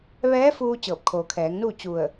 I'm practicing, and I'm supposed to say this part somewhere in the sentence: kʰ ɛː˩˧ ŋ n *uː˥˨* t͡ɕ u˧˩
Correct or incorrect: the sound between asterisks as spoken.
correct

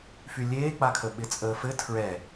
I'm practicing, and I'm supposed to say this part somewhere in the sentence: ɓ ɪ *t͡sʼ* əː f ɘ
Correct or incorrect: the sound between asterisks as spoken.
correct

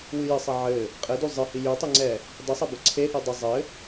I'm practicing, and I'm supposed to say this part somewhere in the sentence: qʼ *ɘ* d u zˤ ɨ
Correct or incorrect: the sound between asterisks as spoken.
correct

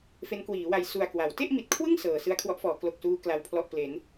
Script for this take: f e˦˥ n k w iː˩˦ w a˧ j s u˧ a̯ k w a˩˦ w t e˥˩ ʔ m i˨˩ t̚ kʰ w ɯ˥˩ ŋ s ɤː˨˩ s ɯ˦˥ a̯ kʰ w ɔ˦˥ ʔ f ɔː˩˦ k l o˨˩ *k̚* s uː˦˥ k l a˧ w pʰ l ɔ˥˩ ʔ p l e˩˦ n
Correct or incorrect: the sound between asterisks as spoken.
correct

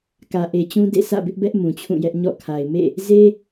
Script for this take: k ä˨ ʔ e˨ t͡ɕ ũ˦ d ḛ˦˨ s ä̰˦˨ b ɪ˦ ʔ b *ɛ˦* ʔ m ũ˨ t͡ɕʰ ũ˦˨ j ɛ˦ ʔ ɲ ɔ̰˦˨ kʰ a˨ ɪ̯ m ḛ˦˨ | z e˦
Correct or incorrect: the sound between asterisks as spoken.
correct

